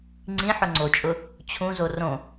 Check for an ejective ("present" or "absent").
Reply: present